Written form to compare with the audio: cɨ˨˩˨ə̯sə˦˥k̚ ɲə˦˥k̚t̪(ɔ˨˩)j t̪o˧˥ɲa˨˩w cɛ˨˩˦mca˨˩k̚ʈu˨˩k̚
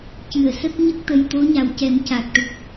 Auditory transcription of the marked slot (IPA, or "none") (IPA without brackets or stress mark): ə˨˩